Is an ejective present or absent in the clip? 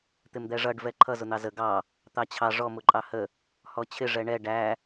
present